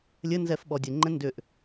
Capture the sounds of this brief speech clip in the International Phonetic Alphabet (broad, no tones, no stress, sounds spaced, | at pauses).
lʲ ɘ n z ɛ f ɓ ɔ dʲ ɘ ŋ͡ǃ ɛ̃ n d ʏ ʔ